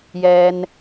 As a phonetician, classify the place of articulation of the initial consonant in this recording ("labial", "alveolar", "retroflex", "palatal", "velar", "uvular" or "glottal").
palatal